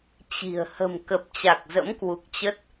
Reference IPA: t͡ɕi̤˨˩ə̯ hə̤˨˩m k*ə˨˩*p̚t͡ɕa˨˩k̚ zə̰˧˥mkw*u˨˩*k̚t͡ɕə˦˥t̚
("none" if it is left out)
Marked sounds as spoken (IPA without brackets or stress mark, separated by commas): ə˨˩, u˨˩